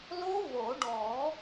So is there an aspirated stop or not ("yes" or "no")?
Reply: no